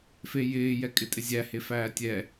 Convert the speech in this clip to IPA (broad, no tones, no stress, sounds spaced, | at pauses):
f e j ɪː j ɛ kʼ ɪ tʼ ɪ zʲ æ h e f æː tʲ ɛ